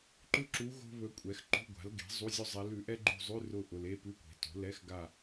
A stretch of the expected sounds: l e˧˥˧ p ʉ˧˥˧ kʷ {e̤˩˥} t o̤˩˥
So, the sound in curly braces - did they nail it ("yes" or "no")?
yes